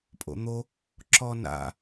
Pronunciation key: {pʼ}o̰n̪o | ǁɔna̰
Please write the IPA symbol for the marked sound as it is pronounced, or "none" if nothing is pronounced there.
pʼ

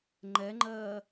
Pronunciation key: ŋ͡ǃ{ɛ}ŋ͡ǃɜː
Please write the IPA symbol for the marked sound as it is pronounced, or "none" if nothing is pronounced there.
ɛ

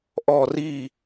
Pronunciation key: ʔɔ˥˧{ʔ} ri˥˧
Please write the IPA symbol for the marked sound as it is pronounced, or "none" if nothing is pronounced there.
none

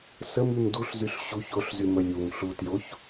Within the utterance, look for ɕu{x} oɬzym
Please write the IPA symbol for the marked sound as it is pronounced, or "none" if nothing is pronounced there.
ç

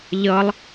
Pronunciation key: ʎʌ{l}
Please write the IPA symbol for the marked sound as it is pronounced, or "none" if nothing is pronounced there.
lˠ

